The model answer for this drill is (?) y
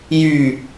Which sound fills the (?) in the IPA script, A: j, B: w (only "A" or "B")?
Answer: A